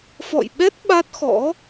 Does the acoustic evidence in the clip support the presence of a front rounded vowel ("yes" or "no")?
no